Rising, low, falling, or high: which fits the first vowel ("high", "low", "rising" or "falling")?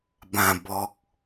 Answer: low